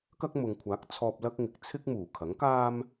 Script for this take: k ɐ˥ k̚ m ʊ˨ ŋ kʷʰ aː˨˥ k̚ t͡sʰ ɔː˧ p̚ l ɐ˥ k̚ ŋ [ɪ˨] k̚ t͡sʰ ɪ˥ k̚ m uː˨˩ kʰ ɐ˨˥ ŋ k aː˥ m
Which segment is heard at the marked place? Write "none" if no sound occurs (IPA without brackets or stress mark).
ɪ˨